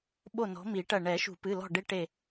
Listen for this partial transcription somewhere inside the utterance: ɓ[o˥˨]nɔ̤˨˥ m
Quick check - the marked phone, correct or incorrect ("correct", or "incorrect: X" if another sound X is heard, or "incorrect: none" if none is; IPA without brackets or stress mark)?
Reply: correct